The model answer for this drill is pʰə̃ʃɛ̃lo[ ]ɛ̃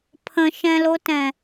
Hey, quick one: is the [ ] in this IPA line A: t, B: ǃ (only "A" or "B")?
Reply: A